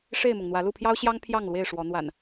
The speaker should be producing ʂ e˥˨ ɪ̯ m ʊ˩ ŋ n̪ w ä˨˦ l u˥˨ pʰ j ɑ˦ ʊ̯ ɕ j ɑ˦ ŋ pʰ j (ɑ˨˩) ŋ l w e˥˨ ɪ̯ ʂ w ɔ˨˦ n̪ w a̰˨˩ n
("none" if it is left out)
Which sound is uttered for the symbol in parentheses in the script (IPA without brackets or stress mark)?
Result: ɑ˥˨